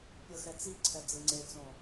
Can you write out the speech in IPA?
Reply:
pʲɤxɛt͡siǀʰɛ d͡zɯŋ͡ǀet͡sõ

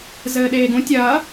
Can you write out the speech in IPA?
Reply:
zɘːɗeːɡũ tʲɐː

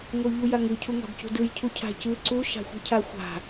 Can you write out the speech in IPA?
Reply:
ŋoʎujaŋɯ cʰuŋa̤bcṳdɯj cʰucʰa̤cɯ ǀu ʃa̤xʷi̤cʰaxʷa̤

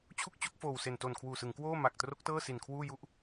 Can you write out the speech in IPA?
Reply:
t͡ɕʰu˥˩k̚t͡ɕo˥˩k̚foː˨˩w se˨˩n toː˨˩nkʰwuː˨˩sɯ˩˦ŋ kwoː˥˩ma˨˩k̚tro˦˥k̚tɤː˥˩ si˨˩nkʰwuː˥˩ju˥˩ʔ

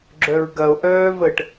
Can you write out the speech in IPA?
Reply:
ɡ͡ǁœɹɡɐo̯ ʔœːvəʈ

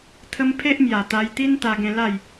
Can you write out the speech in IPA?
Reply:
t̪ʰə˦m pʰe˦ʔmja˨˩t̪a˧jt̪i˦n t̪a˧ɡẽ˧ la˥˧j

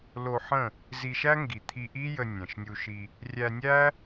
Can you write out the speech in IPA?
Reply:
lo˧ħə̃˦˨ | zi˧ʃæ˦ŋɡi˨ t̪ʰi˧ʔi˦jə˧ nʲɛ̃˨ʃnʲu˧ʃi˧ | rʲæ˧nʲæ˦

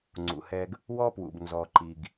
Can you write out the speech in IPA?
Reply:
ŋ͡ǀṵ˩hɛ˧ɡ | wɔ˥pwṵ˩b nzɔ˩ǃi˩ɡ

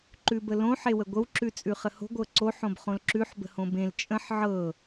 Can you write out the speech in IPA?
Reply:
ǃʉbəlõ ħewəɡʷəw ǁʉt͡sʼʉχəho̤ ɡʷɤǀo ħõbχõlǁʉħ bə̤hõbẽl t͡ʃʼə̃ħ ʕɤ

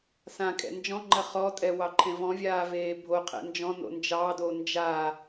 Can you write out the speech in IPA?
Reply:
sã kʼɛ̰nd͡ʒɔ̃ŋ͡ǃɐ χɔtʼɛ wɑǃʰẽvɔ̃vʲaː veːbʱoqʰɛ̰ nd͡ʒɔ̃no̰ nd͡ʒɑdo nd͡ʒa

